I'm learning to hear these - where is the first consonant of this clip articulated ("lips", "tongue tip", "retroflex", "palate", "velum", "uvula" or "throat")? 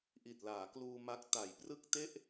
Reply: throat